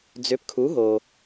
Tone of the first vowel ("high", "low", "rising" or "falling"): rising